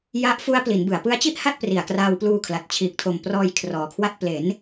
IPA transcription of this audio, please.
ja˦˥ʔfu˦˥a̯ pli˩˦nbɯ˩˦a̯ pɯ˦˥a̯t͡ɕi˥˩ʔha˥˩t̚ pri˨˩a̯kraː˧wpluː˧kʰla˨˩t̚ t͡ɕʰiː˨˩k̚tʰo˨˩m prɔː˧jkʰrɔː˩˦kʰwa˦˥t̚ ple˩˦n

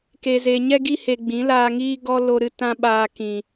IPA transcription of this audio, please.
ke˨ze˨ɲɛ˦ɡi˦ he˧ɡ͡bĩ˨˦ laː˧ŋiː˦ ɡɔ˦ lo˧ ɾɨ˦tã˦ɓaː˧ kĩ˨

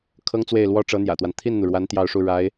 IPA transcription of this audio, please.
kʰɤ˥ŋt͡swe˥˩ɪ̯lwɔ˥ ʈ͡ʂɤ˧˥n̪jä̰˨˩t̪wa˦n t̪ʰi˥˩nn̪u˩ɻwa˧˥n t̪jɑ˥˧ʊ̯ʂu˥˩ ɻa˧˥ɪ̯

